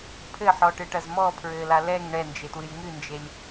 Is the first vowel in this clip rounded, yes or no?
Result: no